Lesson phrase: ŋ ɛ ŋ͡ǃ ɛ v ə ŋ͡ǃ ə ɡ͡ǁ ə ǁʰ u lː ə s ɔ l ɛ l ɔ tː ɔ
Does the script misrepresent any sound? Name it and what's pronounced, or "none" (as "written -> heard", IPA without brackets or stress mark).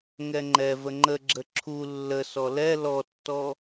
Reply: none